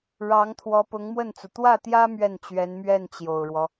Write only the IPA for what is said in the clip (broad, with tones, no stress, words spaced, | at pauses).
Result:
ɻɑ˧˥ŋ t̪ʰwɔ˧˥pʊ˧˥ŋmwə˥˩nt͡su˩ t̪wä˥˩t̪jä˥ mɥɛ˥˩nt͡ɕɥɛ˧˥nmɥɛ˥˩n t͡ɕjo˨˩ʊ̯ɻwɔ˦